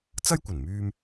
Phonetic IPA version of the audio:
t͡sɐ˥jkʷɐ˨˩nmyː˧m

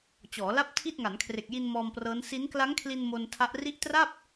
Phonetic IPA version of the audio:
t͡ɕɔː˩˦la˥˩p̚tʰi˥˩t̚ ŋa˩˦nkʰre˨˩k̚ji˧n mɔː˧mprɤː˦˥n si˦˥n kla˦˥ŋkʰli˧n mo˧ntʰa˦˥ʔ ri˦˥ʔtra˥˩p̚

